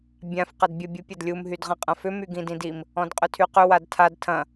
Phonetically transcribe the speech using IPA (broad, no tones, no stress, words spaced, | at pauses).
bʲãf qɐdbʲə bʲupʲɐdlʲum ɦydʁɐ̃qʼɐ̃fʏ myɡĩdĩdim | ɔ̃dqʼʏtʰyqʏ wadtʰad tʰɐ̃